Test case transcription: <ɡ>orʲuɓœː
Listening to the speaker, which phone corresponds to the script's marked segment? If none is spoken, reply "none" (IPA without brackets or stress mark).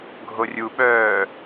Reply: ɡʱ